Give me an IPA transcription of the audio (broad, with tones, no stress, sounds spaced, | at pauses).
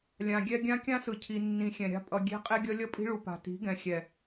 lʲ ã˨ ɡʲ ɛ˦ ɡʲ ã˦ kʲ ã˦ s ɯ˨ cʰ i˨ nː ĩ˨ xʲ ɛ̃˨ ɾʲ a̤˦ pʼ ʌ˨ ɡʲ e̤˦ qʼ e˦ ɡʲ ʌ˦ lʲ ʌ˦ pʼ i̤˦ ɭ u˨ p a̤˨ t i̤˨˦ ɡ ɛ̃˨ xʲ ɛ˨